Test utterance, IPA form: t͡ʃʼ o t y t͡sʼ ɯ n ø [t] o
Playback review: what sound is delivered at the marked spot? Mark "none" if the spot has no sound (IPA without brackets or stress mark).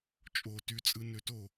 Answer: t